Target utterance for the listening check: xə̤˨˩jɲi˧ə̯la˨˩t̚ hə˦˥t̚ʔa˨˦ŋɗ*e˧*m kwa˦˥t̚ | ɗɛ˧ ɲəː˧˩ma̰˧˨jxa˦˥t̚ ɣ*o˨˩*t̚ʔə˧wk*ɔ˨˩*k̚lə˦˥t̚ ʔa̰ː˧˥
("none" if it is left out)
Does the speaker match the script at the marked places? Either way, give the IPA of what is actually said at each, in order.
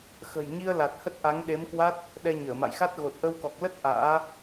e˨˦, o˨˩, ɔ˨˩

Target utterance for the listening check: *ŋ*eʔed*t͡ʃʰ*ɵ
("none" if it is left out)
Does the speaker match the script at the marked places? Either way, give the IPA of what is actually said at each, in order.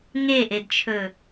ŋ, t͡ʃʰ

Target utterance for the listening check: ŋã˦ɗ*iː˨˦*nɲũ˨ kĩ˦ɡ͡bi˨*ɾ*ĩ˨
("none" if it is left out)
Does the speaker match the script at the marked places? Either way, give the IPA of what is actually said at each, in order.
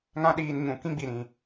iː˧, ɾ

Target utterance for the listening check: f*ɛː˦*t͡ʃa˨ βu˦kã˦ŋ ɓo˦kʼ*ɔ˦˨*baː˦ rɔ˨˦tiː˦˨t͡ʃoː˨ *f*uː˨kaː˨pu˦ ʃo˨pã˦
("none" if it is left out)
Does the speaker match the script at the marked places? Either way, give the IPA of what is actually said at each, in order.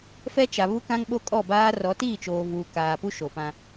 ɛ˦, ɔ˦˨, v

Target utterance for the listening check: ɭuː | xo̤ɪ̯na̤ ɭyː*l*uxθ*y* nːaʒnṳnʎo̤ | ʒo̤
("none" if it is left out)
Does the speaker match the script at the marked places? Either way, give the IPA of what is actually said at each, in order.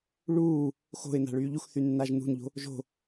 ʎ, y

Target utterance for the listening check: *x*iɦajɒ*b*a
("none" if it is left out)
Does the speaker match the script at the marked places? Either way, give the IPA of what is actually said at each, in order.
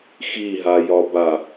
x, b

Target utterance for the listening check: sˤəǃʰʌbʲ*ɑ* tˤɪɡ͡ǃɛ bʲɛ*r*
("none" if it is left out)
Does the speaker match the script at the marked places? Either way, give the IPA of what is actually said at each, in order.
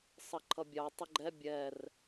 ɑ, r

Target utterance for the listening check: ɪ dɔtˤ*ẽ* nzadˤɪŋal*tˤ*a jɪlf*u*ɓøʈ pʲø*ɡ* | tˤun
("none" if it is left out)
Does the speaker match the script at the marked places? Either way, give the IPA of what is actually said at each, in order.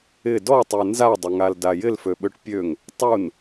e, d, ø, ŋ

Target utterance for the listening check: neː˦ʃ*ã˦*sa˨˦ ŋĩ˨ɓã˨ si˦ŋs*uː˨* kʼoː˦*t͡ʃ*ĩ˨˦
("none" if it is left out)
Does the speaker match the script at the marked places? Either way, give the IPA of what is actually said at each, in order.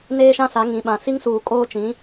ã˦, uː˨, t͡ʃ

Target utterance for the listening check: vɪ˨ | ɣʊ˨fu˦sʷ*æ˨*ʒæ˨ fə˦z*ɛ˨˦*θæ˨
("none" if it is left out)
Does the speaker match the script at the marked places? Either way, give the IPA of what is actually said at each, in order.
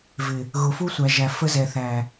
æ˨, ɛ˨

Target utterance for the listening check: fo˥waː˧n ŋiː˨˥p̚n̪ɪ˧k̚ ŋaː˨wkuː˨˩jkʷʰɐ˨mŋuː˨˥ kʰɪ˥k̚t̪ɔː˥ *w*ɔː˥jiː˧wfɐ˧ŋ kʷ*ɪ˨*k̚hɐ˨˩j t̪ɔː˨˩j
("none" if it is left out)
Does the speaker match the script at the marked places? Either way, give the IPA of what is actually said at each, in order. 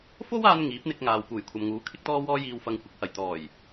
w, ɪ˨˥

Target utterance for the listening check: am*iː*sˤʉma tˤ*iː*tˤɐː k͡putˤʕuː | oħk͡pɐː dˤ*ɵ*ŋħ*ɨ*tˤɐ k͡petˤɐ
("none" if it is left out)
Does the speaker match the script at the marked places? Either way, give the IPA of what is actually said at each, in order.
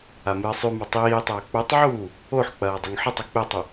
ɨː, iː, ɵ, ɨ

